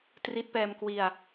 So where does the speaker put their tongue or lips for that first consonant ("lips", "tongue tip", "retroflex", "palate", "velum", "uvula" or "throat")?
tongue tip